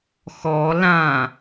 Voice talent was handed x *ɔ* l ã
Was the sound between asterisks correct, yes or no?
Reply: yes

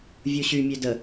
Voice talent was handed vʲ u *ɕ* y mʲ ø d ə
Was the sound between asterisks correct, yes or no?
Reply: yes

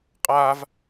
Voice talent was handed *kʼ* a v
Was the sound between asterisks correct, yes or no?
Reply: no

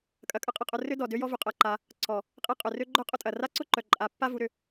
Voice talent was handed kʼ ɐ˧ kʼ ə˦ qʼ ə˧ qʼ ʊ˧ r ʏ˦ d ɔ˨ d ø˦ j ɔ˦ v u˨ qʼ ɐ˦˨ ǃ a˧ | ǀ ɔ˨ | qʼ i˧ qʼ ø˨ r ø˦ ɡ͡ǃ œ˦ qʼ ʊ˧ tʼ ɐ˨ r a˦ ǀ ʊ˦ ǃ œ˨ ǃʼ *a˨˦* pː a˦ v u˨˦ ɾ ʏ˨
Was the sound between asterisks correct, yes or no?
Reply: yes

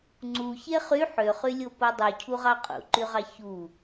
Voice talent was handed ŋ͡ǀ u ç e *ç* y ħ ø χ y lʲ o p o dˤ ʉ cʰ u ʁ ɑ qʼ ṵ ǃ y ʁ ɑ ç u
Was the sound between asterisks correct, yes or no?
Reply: no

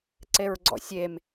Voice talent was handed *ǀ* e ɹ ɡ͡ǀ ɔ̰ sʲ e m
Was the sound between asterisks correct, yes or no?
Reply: yes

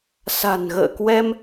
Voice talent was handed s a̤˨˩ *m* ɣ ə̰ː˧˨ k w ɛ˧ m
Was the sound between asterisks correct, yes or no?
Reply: no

